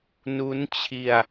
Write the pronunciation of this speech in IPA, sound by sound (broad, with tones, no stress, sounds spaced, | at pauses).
n u˦˥ n t͡ɕʰ i˧ a̯